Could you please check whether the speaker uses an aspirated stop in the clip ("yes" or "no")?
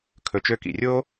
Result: yes